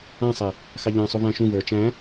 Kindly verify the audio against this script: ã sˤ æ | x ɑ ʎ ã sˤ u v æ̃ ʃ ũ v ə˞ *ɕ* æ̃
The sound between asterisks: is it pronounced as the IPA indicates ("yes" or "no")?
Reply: no